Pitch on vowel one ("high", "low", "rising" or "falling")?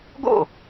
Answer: falling